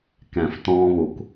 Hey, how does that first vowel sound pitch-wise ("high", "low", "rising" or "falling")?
low